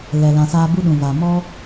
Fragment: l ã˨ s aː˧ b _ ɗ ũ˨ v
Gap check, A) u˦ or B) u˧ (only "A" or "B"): A